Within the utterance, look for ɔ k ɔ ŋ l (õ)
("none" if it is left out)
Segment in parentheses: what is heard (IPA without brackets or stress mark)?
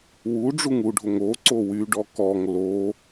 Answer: o